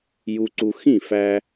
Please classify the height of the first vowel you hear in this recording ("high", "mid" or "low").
high